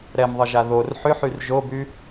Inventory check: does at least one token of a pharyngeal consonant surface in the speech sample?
yes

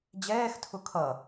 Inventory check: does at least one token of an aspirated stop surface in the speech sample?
yes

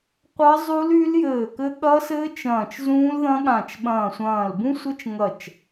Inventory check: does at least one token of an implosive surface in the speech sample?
yes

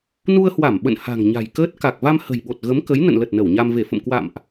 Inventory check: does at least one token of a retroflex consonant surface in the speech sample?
no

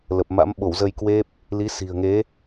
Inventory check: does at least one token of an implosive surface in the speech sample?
yes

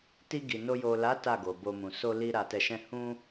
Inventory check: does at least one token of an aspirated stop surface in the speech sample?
no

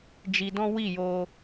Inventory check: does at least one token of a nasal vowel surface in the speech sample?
yes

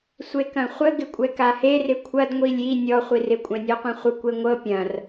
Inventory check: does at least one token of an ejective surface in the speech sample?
yes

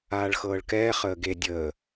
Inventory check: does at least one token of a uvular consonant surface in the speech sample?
yes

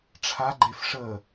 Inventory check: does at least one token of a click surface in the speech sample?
yes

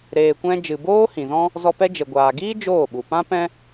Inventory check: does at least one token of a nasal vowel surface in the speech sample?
yes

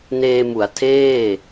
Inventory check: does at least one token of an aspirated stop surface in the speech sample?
yes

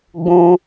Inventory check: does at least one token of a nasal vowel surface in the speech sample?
yes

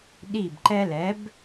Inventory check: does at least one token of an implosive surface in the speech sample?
yes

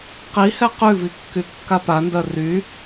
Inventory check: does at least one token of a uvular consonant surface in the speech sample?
yes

